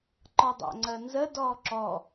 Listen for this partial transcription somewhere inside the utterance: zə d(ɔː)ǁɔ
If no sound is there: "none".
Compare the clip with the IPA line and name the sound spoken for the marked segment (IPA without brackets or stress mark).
ɔː